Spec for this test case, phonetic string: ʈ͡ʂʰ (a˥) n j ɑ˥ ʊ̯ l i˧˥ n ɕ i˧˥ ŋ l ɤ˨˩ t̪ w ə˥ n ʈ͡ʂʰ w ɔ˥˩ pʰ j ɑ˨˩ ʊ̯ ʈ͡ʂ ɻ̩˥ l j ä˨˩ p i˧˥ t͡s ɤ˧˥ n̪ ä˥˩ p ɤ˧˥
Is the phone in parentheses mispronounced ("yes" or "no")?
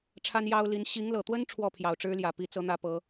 no